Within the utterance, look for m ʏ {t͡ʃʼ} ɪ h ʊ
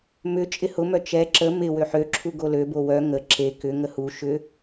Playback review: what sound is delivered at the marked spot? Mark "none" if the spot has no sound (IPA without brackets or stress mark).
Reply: t͡ʃʼ